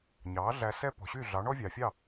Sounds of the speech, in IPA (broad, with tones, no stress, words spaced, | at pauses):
ɲɑː˩˥ɮæ˧ sɛ˥ pɔ̤˩ɕy˥˩ ɮɑ˩˥ɳɔ˥vʲɑː˩fʲɑ˥˩